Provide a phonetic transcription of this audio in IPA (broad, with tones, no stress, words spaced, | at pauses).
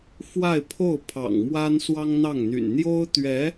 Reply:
fwa˥˧ɪ̯pʰo˥˩ʊ̯pʰɑ̰˨˩ŋmwa˥n swɑ˥ŋn̪ɑ˥˩ŋn̪y̰˨˩n n̪jo˥ʊ̯t̪ɥɛ˧˥